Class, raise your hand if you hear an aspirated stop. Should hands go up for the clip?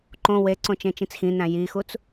no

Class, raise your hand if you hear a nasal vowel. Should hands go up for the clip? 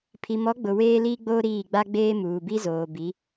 no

